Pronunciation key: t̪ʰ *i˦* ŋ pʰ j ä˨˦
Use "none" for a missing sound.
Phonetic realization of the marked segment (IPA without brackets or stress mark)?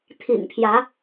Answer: ḭ˨˩